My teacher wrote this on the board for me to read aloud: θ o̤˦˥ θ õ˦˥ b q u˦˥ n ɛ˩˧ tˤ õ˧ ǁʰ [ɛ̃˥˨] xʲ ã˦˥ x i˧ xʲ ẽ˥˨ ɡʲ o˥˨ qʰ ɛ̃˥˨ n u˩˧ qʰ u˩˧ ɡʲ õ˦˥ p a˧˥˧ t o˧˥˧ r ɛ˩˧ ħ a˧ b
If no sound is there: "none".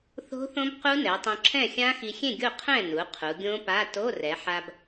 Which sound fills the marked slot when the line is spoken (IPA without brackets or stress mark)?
ɛ̃˥˨